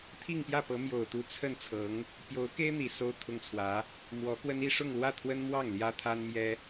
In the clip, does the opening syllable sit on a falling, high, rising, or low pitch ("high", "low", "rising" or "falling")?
falling